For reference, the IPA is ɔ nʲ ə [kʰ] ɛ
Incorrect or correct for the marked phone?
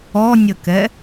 incorrect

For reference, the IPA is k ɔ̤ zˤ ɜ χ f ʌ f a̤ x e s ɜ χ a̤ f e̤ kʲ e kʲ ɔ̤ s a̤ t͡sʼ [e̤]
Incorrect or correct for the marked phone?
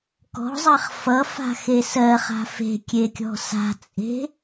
correct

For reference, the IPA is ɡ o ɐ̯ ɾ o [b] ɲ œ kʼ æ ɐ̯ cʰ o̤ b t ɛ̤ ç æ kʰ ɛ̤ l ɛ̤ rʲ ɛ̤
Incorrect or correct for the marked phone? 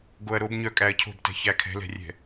correct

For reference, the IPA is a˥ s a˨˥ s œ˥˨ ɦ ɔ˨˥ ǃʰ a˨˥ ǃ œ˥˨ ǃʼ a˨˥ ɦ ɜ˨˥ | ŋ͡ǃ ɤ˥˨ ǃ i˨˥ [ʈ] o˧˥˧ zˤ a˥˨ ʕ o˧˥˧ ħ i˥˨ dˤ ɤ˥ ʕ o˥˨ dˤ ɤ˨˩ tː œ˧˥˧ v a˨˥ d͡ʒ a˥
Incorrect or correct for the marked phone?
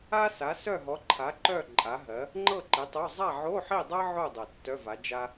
incorrect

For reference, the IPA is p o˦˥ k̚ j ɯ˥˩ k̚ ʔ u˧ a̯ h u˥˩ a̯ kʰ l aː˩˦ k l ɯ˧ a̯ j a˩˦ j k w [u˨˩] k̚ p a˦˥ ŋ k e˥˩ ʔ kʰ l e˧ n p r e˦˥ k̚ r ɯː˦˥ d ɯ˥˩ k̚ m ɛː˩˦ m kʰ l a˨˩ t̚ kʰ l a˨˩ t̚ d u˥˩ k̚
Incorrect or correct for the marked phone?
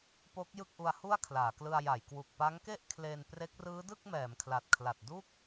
correct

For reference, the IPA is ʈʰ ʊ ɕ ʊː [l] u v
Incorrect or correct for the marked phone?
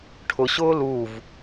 correct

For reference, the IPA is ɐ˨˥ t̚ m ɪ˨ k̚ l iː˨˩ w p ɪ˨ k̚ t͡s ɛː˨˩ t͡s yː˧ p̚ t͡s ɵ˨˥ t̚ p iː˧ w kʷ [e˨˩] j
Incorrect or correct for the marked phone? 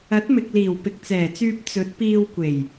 correct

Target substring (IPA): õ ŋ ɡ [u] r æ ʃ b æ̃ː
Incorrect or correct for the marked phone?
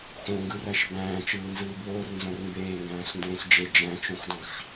incorrect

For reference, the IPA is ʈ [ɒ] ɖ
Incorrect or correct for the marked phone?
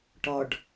correct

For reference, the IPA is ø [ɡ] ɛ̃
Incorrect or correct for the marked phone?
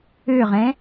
incorrect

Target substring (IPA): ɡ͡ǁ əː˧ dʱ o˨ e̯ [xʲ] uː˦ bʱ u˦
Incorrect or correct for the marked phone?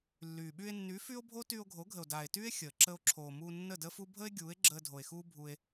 incorrect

